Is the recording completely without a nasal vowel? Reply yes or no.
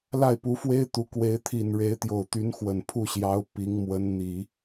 yes